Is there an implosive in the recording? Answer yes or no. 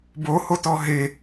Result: no